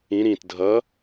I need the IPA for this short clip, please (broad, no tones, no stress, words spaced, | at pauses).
ĩ ɾĩt dʱʌ